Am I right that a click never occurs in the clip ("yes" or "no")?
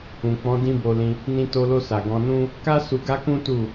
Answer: yes